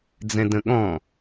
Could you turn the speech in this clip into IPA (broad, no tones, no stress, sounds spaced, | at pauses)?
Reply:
d͡z ɛ̃ d ə̃ ɠ ɔ̃